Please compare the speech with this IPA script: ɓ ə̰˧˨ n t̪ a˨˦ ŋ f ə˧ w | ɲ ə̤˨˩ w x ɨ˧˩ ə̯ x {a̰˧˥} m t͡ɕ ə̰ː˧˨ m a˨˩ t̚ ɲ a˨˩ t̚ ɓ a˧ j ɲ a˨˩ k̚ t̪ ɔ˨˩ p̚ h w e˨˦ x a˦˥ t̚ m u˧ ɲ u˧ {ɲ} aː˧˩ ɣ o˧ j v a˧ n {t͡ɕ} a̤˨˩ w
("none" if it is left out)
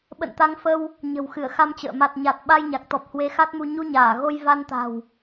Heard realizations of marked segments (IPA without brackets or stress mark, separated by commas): a˧, ɲ, t̪